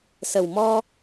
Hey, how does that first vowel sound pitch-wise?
low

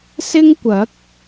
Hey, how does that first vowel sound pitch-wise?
high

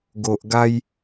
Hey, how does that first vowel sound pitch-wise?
low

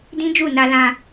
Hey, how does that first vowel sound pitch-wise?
high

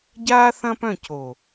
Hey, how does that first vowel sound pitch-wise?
high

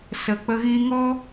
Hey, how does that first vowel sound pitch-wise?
low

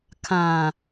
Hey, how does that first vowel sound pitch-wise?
low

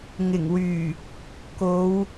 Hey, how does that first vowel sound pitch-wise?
low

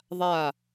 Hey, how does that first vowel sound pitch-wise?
falling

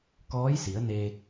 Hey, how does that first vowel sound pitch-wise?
rising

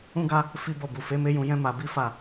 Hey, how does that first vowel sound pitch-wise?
high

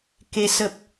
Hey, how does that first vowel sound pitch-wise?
rising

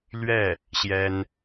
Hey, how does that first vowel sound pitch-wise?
falling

